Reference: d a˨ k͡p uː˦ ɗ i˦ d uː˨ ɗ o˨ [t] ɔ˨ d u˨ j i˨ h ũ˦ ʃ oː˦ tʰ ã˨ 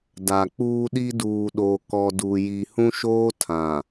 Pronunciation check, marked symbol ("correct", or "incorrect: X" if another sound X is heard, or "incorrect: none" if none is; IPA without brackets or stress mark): incorrect: k